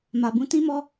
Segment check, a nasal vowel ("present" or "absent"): present